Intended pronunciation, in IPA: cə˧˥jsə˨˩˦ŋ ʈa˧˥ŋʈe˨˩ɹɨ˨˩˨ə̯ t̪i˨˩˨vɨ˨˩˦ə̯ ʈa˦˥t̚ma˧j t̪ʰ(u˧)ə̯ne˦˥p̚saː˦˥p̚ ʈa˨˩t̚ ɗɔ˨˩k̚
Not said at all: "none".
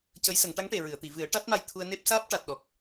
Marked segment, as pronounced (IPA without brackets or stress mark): u˧